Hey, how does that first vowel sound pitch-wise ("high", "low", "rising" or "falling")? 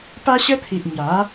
high